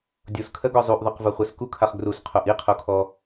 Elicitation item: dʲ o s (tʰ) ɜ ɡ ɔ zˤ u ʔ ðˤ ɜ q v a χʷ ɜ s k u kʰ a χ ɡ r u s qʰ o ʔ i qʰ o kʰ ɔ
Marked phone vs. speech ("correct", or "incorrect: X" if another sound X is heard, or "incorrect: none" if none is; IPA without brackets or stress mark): incorrect: kʰ